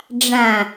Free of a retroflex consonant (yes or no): no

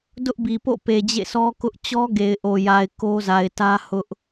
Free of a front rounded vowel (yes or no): yes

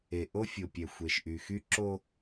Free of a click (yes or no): no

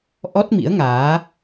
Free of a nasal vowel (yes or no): yes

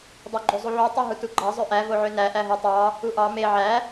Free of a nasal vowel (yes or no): yes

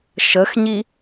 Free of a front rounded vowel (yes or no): yes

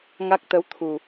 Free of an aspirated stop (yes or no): no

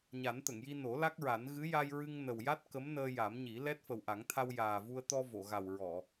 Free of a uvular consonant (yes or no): yes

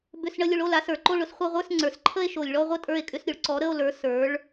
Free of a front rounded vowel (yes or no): no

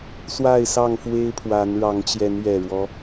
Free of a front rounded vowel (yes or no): yes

